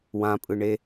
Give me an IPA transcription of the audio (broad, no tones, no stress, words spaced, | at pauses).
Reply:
wãpʼɯɳe